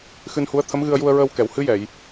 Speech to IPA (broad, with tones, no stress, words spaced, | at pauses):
xɨ˧nhu˧˥ə̯ t̪ʰə˧˥mɣɨ˧ə̯ju˧ə̯ɹəː˧w kɛ˨˩˨whɨ˧˥jɛ˨˩˨j